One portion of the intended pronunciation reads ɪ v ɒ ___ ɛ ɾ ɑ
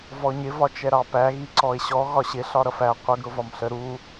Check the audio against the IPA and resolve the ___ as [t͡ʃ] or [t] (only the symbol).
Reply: t͡ʃ